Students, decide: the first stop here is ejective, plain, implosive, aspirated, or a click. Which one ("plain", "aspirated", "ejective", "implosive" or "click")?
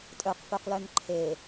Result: ejective